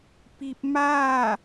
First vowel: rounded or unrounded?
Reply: unrounded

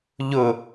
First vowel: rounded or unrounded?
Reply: rounded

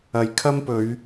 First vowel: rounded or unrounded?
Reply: unrounded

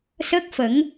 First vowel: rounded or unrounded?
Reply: unrounded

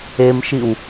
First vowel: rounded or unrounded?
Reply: unrounded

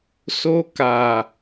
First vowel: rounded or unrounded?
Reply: rounded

